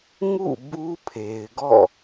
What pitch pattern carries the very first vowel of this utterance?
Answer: falling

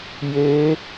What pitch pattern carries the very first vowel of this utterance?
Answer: rising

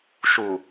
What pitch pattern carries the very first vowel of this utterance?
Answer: low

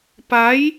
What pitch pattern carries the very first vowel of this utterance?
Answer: rising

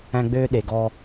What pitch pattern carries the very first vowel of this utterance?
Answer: high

